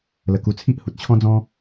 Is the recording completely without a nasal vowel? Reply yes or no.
no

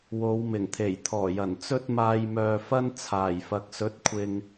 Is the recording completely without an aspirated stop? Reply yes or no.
no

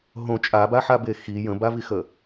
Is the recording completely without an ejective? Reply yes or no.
no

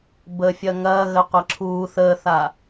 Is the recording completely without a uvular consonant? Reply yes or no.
no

